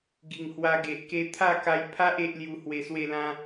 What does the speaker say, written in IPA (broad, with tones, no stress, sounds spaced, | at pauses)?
ɡ i˨˩ ŋ h w a˧ ɡ e˨ ʔ k e˧ t̪ʰ a˥˧ k a˧ j pʰ a˦ ʔ e˦ ʔ l j u˧ h w e˧ s w e˥˧ l ã˦